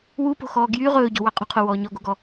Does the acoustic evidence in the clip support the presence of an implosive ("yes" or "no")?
no